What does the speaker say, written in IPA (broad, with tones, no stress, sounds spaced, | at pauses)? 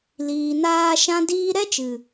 l iː˨ n aː˧ ʃ ã˦ d iː˦ ɾ ɛ˦ t͡ʃ ɨ˨